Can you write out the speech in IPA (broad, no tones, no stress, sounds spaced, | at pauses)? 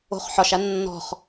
o̤ χ ħ ɒ ʃ a nː ɔ̤ χ